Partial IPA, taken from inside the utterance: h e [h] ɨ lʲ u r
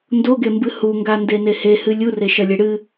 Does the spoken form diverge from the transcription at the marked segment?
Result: no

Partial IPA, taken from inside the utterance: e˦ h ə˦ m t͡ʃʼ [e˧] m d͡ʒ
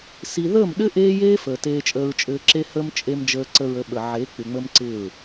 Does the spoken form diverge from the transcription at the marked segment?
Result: no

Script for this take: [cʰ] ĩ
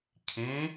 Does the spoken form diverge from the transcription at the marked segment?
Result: no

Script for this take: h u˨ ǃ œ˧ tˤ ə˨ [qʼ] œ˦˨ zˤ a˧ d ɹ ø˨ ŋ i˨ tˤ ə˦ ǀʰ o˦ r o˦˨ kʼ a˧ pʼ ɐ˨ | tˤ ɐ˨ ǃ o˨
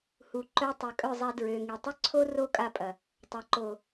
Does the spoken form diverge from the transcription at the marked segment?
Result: yes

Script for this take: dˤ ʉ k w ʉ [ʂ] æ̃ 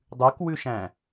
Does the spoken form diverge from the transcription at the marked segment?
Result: yes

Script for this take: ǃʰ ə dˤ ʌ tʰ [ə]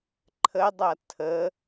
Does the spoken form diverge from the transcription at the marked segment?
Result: no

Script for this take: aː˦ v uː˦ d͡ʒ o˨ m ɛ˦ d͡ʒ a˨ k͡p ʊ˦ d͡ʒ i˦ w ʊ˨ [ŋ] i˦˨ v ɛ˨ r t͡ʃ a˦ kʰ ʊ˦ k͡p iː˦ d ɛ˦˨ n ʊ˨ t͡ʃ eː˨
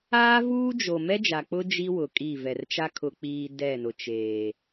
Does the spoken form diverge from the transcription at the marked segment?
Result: yes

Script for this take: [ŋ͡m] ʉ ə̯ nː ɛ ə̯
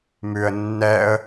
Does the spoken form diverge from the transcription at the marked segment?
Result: yes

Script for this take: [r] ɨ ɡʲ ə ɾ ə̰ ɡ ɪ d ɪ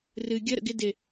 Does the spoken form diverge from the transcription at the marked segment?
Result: no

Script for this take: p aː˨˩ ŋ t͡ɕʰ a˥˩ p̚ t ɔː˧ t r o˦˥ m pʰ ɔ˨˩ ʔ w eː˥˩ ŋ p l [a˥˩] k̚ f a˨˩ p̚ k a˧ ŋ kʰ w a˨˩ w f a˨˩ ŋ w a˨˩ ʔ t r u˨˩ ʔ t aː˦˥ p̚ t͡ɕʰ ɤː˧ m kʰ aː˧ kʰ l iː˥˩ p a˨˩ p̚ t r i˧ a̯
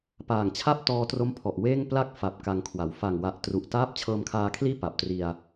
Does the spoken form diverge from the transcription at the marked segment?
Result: no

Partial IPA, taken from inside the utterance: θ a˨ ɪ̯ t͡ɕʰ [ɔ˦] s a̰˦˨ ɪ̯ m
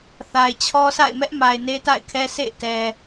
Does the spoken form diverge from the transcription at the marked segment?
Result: no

